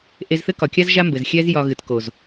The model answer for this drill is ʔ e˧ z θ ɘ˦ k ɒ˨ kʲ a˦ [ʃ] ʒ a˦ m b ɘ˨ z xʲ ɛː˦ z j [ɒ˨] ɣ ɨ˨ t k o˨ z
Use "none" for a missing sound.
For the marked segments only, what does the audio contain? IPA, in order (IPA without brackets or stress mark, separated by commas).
z, ɒ˧